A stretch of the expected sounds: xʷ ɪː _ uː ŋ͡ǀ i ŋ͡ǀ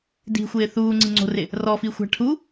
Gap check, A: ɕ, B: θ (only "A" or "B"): B